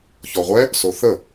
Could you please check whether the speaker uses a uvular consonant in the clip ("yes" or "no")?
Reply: yes